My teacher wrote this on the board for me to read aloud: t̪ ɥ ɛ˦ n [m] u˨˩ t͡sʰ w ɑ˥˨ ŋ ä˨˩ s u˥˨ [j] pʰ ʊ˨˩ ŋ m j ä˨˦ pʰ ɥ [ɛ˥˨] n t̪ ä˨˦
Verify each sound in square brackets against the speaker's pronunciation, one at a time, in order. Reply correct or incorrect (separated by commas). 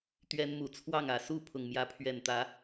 correct, incorrect, incorrect